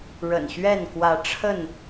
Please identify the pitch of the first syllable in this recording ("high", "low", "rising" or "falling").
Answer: low